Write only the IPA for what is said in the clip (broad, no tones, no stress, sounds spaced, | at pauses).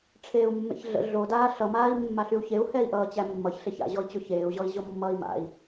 ʈ͡ʂʰ eː u̯ mː ḛ ç ɮ ə̰ ɮ o d aː ɬ ʌ m aː i̯ mː a ɬ y u̯ ç e u̯ h ɛ i̯ ʔ ʌː t͡ɕ æ mː ʌ ç ɬ e ç a̰ ʑ ɔ i̯ t͡ɕ o ç eː u̯ ʑ ɔ i̯ ʑ o mː ʌː i̯ m a̰ i̯